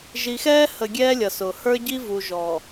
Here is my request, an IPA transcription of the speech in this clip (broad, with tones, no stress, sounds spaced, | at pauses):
ʒ i˨ x ɛː˦ h ə˨ ɡʲ ɛː˦ lʲ ʌ˨ s ʊ˨ h ə˞˦ ɟ i˦ v u˨ ʒ ɔ˨